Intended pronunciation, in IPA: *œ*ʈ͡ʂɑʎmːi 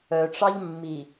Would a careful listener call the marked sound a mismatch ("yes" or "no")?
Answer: no